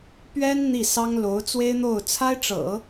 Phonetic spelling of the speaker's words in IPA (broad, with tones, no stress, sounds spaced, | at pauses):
p ɥ ɛ˥ n n̪ i˥˩ s ɑ˥ ŋ l o˧˥ ʊ̯ t͡s w e˥ ɪ̯ n̪ o˥˩ ʊ̯ t͡sʰ a˥ ɪ̯ ʈ͡ʂ ɤ̰˨˩˦